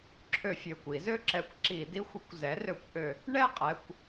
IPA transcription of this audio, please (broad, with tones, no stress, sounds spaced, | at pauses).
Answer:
ǁʰ ø˧˩˧ fʲ ø˩˧˩ kʷ i˧˩˧ z ø˥˧ ǁ ɛ˧˥ kʷ ǁ i˧˩˧ d i˧˥ xʷ ə˩˥ kʷ z ɛ˩˥ r ø˧˩˧ kʷ ʔ ø˧˩˧ | ɳ ɛ˥˧ qʼ ɛ˩˧˩ kʷ